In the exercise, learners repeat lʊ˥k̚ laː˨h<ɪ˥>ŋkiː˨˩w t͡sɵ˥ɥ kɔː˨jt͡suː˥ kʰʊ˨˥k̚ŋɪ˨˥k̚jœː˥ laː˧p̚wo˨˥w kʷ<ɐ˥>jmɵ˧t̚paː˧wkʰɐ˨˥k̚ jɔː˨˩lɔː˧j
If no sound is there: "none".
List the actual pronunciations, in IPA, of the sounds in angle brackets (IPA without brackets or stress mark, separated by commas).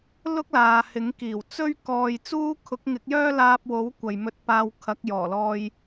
ɪ˨˥, ɐ˨